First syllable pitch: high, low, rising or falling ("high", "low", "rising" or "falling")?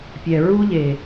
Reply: low